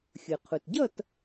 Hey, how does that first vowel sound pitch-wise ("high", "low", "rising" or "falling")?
low